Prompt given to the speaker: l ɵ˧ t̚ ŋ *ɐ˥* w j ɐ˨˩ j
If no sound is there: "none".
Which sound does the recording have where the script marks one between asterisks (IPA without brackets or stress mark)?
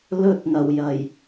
ɐ˨˩